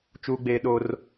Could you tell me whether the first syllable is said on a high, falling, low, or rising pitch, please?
high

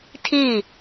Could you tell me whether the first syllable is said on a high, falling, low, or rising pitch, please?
falling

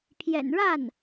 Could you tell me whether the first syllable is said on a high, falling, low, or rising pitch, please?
low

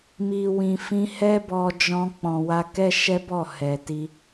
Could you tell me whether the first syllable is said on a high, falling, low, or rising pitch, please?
low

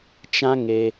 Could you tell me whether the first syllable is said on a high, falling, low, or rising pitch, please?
high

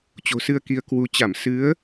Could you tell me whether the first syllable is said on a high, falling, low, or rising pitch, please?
low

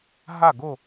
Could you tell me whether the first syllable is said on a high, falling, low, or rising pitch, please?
falling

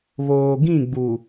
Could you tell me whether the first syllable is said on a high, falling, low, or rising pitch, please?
low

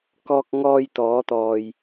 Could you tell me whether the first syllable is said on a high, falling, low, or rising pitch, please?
high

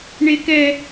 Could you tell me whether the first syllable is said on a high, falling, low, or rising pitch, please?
high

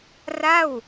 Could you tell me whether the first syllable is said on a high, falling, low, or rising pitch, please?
falling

